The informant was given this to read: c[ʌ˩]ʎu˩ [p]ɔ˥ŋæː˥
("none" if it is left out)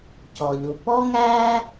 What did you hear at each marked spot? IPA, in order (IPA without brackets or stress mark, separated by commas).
ɔ˩, p